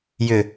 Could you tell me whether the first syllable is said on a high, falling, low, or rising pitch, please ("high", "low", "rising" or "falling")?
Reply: low